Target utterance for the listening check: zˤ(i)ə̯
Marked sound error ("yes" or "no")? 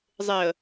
yes